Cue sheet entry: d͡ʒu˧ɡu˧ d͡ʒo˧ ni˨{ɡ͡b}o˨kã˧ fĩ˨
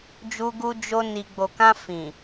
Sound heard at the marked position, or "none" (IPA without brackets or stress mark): ɡ͡b